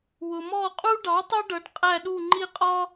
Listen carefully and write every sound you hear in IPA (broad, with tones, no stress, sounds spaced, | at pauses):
w ʊ˩ m ɔ˧˩ qʼ u˦ ɖ ɑ˩˥ tˤ ʊ˦ ɖ ʌ˩˥ ɖ qʼ æ˧˩ ɗ u˧˩ ŋ͡ǃ i˦ qʼ ɒ˦